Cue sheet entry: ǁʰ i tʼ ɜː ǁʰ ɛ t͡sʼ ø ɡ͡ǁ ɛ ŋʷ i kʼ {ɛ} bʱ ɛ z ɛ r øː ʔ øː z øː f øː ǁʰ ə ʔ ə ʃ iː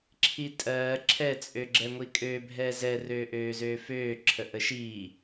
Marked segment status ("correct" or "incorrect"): incorrect